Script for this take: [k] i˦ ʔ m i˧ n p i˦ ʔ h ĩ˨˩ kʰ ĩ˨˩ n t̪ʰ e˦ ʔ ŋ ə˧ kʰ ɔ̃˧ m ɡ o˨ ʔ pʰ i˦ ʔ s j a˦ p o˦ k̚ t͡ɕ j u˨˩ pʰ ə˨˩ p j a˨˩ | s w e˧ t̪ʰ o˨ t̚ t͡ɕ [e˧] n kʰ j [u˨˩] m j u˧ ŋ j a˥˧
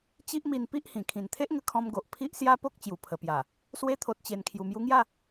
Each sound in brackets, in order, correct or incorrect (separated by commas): incorrect, incorrect, correct